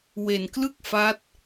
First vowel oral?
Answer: yes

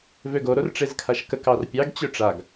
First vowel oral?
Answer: yes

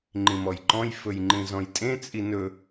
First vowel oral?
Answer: no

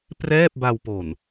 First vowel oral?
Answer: yes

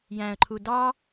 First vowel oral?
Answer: no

